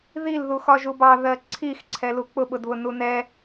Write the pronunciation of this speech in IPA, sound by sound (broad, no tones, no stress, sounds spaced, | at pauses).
ð i l ð u x ɒ ʒ u b ɑ ð ɜ ǀʰ i x ǀʰ ɛ l u k͡p ʊ ɓ ʊ d β ʊ n u n ɛ